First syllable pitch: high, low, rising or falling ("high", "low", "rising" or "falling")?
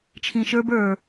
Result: low